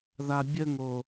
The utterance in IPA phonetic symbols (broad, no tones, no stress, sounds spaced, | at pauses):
ð a bʲ ə ŋ o